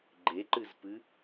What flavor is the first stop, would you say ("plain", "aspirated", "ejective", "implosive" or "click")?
click